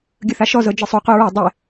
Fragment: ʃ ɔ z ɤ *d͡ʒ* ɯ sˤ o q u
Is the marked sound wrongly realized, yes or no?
no